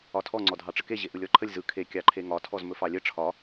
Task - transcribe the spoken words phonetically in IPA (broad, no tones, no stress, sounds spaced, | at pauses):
ɒ tʰ ɔ ŋ͡ǀ ɔ dʱ ɑ ʈ͡ʂ ə k e ʑ e ʔ ɯ lʲ ɔ ǃʰ ə lʲ z ɯ kʰ e kʲ ɑ ǃʰ e ŋ ɒ tʰ ɔ z m ɵ f ɑ lʲ ə ʈ͡ʂʰ ɒ